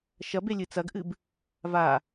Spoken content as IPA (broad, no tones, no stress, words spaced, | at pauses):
ʃɐbelʲɨ t͡sɐɡʔɨb | va